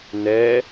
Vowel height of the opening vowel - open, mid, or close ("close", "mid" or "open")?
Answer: mid